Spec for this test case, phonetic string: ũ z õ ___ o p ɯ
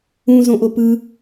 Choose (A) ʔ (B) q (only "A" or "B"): A